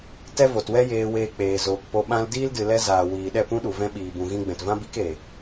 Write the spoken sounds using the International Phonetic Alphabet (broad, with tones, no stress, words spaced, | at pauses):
tɛ˦vo˨twɛ˦ jeː˧weː˧ k͡peː˨zoː˨kpo˧ ɓã˧ldiː˦ldɨ˨ lɛ˧zaː˨ wiː˨ ɗɛ˦˨pũ˦ɗu˨ vɛ̃˧ɓiː˨bũ˨ ɣĩ˧ɡ͡bɛ̃˨tvã˦ bi˦k e˨